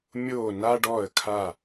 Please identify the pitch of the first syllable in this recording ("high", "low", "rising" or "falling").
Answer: falling